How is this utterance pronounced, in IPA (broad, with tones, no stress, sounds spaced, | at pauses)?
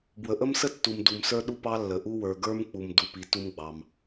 b w ə˨ ʔ ə˥ m s ə˥ tː u˨ m d u˨ m s ə˞˥ ɗ u˥ p ɑ˥ lː ə˨ ʔ u˥ w ə˞˨ ɡ ə˞˥ m k͡p u˨ m d u˨ p i˨ t u˥ m ɡ͡b ɑ˨ m